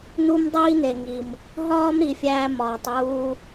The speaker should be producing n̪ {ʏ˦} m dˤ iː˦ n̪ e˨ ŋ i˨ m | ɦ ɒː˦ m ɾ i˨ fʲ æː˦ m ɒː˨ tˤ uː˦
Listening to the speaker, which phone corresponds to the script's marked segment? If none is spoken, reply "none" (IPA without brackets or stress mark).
u˦